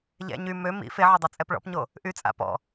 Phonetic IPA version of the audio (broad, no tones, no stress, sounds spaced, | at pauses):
ʎ ɛ̰ ɲ y m ø m ḭ f e ʕ ɔ dˤ o t͡sʼ ɛ p ɭ ɔ̰ p ɲ o | ʔ y t͡sʼ a̰ p ɔ̰